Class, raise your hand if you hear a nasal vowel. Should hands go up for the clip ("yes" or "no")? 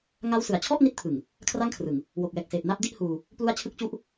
no